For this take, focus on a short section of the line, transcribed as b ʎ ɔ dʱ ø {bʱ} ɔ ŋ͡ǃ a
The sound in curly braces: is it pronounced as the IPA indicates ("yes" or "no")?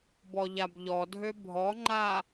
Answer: yes